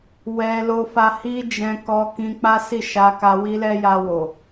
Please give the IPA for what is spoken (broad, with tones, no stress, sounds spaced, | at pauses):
w ɛ˧ l o˧ f a˧ h i˦ d͡ʒ ɛ̃˧ k ɔ˧ k ĩ˧ k͡p a˦ s i˦˨ ʃ a˧ k a˧ w i˦ l ɛ˦ j a˧ w o˨